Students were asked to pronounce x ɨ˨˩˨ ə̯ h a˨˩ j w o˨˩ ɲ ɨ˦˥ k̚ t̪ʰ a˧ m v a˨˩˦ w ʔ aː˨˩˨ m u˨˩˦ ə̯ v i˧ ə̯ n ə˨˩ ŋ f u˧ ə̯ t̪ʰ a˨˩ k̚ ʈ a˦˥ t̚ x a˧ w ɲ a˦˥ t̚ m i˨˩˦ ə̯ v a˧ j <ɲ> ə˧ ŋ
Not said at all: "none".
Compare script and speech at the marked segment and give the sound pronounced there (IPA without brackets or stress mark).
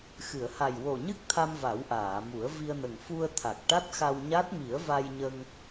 ɲ